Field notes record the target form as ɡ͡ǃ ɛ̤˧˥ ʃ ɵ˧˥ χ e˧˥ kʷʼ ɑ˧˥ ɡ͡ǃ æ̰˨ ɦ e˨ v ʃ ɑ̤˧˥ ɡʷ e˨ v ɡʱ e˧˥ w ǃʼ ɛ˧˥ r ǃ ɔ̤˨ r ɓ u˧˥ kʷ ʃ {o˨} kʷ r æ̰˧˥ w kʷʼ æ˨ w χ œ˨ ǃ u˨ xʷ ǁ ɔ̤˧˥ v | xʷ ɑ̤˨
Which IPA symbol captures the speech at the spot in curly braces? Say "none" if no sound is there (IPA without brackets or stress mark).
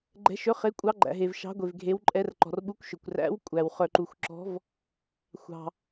ɵ˨